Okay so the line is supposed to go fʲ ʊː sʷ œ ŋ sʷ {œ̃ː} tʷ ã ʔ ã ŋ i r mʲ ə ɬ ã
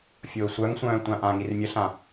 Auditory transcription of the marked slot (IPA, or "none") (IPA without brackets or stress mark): œ̃ː